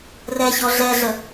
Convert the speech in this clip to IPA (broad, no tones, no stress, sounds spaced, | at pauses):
r ɛ ç ɔ ɮ ɛ ɮ ə